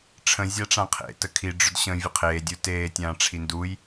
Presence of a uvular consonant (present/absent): present